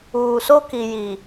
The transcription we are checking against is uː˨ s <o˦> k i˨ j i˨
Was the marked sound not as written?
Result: no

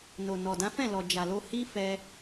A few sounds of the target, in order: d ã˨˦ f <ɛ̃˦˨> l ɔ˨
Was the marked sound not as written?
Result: no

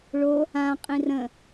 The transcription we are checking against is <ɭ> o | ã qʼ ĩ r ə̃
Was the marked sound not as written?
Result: no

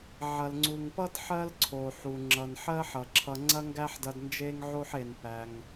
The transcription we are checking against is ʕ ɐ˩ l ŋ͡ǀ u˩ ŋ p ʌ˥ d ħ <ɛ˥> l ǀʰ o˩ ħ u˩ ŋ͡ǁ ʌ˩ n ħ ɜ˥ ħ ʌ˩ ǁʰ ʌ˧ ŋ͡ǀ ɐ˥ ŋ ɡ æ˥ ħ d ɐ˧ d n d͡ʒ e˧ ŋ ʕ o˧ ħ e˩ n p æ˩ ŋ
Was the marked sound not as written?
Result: yes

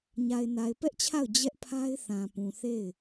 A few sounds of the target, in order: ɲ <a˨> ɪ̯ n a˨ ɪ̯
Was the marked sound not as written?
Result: no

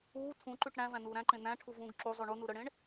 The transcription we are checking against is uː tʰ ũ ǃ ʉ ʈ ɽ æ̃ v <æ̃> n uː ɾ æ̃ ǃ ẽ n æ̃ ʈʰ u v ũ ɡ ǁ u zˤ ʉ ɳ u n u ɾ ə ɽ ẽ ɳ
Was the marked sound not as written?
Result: no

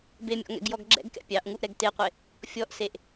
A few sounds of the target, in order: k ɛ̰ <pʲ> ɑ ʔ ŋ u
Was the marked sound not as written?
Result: no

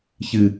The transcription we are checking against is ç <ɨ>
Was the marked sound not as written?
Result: no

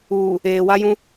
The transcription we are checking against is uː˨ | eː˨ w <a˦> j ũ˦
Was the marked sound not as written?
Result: no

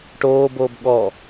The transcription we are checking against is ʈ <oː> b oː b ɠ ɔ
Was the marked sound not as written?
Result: no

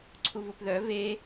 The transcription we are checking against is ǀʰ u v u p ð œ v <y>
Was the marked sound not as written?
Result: yes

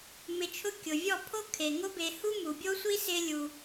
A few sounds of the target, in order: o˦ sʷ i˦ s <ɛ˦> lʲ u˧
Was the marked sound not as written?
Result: yes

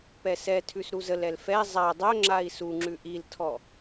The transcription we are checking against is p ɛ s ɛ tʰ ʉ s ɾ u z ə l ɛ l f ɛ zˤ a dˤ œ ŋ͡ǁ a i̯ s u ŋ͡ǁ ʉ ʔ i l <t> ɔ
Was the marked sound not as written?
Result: yes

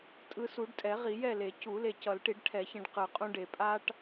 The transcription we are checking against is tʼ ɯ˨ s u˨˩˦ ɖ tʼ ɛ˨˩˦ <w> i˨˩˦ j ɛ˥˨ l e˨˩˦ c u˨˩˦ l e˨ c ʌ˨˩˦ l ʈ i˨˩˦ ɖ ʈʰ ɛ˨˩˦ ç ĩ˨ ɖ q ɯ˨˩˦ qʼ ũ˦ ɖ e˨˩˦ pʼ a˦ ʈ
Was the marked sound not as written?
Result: yes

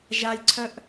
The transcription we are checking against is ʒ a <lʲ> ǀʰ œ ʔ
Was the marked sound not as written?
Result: no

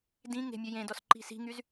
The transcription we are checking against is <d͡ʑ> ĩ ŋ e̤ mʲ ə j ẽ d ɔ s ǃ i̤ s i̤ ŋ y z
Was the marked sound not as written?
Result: yes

